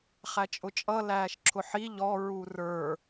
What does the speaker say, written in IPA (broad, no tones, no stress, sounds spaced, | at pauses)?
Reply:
χ æ t͡ʃʼ ʊ t͡ʃʼ ʌ l æː ʃ ǁʰ ʊ ħ i ʎ ɔ ɹ u r ə˞